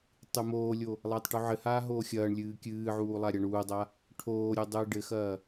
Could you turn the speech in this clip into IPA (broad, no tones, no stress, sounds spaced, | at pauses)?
tˤ ɨ m oː lʲ o | lˠ ɐː tˤ ʈ u ʕ ɘ h aː ɦ oː xʲ ɐː ɳ lʲ ɨː kʲ ɨː ʕ uː lˠ a ɾʲ a ɳ uː dˤ a | ʈʰ oː ɾʲ u dˤ ɨː ɖ ɘ x ɐː